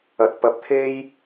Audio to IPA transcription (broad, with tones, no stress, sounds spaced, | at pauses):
ɐ˨ t̚ p ɐ˧ p̚ t̪ʰ e˥ j